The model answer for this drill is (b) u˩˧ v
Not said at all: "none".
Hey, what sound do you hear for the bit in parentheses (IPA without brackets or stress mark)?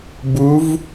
b